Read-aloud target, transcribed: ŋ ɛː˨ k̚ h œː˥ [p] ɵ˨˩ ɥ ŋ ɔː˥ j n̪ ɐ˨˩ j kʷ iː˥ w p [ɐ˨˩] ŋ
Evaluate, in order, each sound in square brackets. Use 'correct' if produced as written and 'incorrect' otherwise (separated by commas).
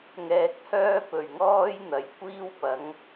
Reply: correct, incorrect